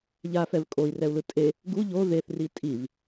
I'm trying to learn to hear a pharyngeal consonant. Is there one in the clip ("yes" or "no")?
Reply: no